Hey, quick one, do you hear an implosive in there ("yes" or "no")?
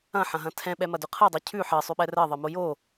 yes